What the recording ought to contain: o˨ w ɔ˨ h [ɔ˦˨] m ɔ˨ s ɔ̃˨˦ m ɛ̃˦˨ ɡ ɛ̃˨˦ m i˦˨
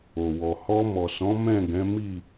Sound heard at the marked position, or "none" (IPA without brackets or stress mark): ɔ˧